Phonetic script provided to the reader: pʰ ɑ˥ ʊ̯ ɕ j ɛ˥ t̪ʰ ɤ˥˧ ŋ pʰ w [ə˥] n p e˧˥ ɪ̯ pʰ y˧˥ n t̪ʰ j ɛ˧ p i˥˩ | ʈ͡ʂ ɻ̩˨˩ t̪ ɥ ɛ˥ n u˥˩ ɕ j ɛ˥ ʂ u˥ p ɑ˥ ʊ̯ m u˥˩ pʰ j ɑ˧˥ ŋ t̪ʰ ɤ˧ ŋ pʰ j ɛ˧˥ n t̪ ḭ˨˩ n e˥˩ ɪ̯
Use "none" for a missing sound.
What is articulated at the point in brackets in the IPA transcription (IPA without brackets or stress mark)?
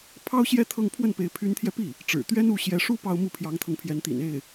ə˥˩